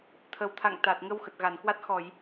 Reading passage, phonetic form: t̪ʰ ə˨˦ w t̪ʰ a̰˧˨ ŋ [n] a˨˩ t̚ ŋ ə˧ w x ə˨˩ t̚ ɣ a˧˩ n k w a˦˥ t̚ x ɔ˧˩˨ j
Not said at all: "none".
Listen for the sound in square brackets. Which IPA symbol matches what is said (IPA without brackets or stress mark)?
t̪